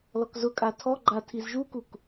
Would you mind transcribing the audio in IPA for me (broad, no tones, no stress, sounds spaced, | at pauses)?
l ɔ k z ʊ kʼ a tʰ ɔ ɡ͡ǃ a tʰ i z ʒ u k u k